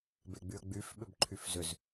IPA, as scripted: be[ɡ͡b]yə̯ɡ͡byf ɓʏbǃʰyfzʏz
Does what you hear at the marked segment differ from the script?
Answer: no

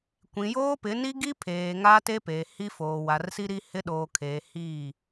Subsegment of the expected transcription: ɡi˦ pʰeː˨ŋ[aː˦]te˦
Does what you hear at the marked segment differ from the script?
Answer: no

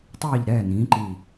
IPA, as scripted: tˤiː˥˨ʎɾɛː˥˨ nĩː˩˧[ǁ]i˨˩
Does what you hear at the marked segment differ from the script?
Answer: yes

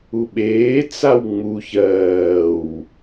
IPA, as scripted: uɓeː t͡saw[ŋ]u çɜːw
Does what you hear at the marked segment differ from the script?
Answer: yes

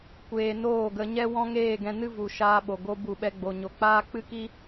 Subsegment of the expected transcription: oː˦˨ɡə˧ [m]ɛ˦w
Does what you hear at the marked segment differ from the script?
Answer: yes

